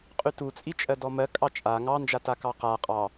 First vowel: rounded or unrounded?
rounded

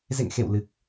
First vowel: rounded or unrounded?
unrounded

